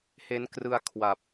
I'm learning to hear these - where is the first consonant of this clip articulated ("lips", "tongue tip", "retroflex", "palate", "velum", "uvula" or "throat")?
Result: throat